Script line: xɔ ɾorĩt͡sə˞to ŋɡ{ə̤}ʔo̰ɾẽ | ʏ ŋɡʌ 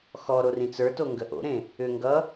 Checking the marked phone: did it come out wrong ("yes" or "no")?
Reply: yes